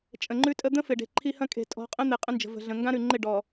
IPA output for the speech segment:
t͡ʃʼ ə̃˨ ŋ͡ǃ ʉ˦ tʼ ə˦ d̪ ə̃˦ f ɪ˨ ɖ e̤˨ ǃʰ i˦ h ɐ̃˦ kʼ e̤˨ tʼ ɔ̤˨˦ qʼ ə̃˦ n̪ e˨ qʼ ə̃˦ n d͡ʒ ə̤˨ v ə̤˨ ɮ ə̃˨ ŋ ɡ ã˦ ɾ ʉ˨ ŋ͡ǃ ɪ˦˨ ɖ ɔ˨

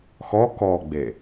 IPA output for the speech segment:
x ɔ k ɔ ɡ͡b e

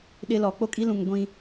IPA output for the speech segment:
ɗ ɪ˦ l ɔ˨˦ k͡p o˦ kʼ i˦ l ũ˨ ŋ ɡʷ ĩ˦

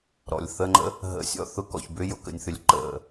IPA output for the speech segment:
ɾ ɔ̰˨ lʲ θ ə˦ ŋ͡ǃ ə̰˦ | ɦ ə̰˨˦ sʲ ɔ̰˧ θ ʊ˧ k ɔ̰˨ ç b ʏ˦ j ʊ˨ k ə̰˨ nʲ θ ʏ˨ lʲ ǃ ə̰˨

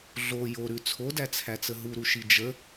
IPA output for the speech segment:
ɮ o j o ɾ ʉ t͡sʰ o d æ t͡sʰ æ t͡s ə ɦ u ɾ u ʃ i d͡ʒ ə

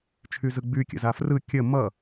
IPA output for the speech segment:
t͡ʃʰ y z ɯ ɡ͡b y kʲ ə̰ z a f r ɯ kʲ ə m ʌ

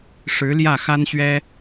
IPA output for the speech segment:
ʂ ɻ̩˧˥ l j ä˥˩ x a˥ n ɕ ɥ ɛ˥

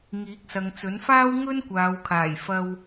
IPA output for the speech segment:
ŋ iː˨˥ k̚ s ɐ˨ ŋ t͡s ɵ˨˥ n f aː˥ w ŋ ɵ˥ n kʷ aː˨˧ w kʰ aː˨˩ j f ɐ˧ w

